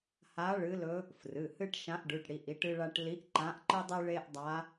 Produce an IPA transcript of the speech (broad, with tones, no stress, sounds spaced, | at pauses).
h a˧˥ ɭ ɨ˧˥ l ɵ˧˥ | f r ɨ˩˧˩ h ɨ˥ ʈ ʃ ã˧˥ ʔ ɖ ʉ˩˧˩ ʈ ɽ i˩˧˩ ʔ i˧˥ ʈ ɨ˥ ɭ a˥ ʈ l i˧˥ ʔ ǃ ã˧˥ ʔ ǃ ɨ˥ dˤ ɨ˥ ɭ e˥ ʔ dˤ a˧˥